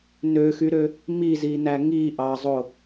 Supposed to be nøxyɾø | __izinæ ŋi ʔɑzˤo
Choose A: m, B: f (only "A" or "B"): A